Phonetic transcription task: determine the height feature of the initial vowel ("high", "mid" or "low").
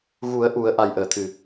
high